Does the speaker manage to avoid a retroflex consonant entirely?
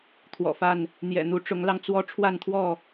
no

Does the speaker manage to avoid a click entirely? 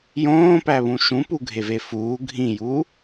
yes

